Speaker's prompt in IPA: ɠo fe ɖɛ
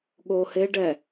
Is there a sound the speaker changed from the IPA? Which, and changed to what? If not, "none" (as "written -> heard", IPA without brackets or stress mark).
f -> h